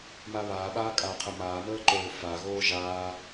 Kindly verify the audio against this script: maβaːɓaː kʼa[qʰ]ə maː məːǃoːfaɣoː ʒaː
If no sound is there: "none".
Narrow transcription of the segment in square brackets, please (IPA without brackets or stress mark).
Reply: qʰ